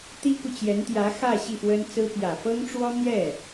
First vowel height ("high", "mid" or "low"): high